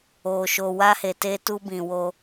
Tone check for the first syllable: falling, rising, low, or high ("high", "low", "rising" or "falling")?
low